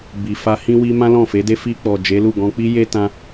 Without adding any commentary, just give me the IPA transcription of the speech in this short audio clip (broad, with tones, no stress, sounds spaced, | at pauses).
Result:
b i˨ f a˧ h ĩ˧ w i˧ m ã˦ l ɔ̃˦˨ f e˨˦ d e˦ f i˧ k͡p ɔ˨ d͡ʒ e˨˦ l u˦˨ ɡ ɔ̃˧ k͡p i˦ j e˦ t ã˧